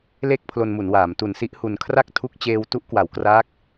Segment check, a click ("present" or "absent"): absent